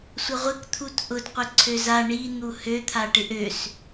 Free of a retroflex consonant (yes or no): no